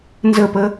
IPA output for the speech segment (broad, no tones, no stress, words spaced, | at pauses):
nzəpə